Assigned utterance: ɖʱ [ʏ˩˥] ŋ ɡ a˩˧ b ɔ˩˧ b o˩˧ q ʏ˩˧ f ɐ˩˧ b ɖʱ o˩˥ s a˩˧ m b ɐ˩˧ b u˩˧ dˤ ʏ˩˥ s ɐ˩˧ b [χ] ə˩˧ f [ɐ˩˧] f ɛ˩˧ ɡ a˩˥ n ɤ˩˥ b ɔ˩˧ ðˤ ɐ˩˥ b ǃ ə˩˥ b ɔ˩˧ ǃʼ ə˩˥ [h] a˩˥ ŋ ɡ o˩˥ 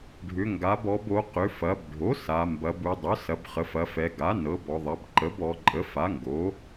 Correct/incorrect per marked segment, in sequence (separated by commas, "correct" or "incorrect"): incorrect, correct, correct, incorrect